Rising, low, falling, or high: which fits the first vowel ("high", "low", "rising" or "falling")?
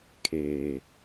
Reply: low